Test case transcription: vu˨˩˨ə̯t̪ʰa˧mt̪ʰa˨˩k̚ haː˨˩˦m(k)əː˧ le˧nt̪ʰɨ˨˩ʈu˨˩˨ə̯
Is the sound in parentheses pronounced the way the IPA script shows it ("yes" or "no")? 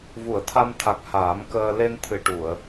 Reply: yes